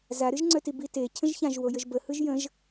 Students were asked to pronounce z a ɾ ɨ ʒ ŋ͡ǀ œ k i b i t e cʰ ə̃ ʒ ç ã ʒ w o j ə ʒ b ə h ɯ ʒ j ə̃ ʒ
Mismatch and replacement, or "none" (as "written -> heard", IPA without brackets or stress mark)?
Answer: k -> t